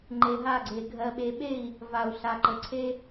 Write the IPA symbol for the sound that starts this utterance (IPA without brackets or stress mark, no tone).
ŋ͡ǃ